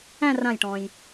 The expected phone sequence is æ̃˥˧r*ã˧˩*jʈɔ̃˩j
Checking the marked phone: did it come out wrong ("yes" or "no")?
no